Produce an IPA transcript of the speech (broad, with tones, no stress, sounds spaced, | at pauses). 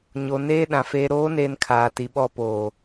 ɲ o˨ n eː˦ ɗ ã˨ f eː˨ ɾ oː˨˦ n eː˨ n kʰ aː˨ t i˨ ɓ ɔ˦˨ p oː˨